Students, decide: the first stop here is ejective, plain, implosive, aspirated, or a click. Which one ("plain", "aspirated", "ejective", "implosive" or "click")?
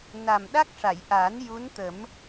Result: implosive